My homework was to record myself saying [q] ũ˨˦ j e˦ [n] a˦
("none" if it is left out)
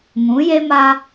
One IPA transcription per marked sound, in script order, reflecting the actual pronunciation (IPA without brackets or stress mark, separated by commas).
ŋ, m